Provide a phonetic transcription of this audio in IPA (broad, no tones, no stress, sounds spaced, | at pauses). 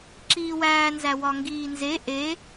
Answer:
ǁ iː w æː n z æ w ɒ ŋ ɡ iː n z e ʔ e